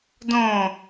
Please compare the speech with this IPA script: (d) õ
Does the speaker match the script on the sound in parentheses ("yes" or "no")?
yes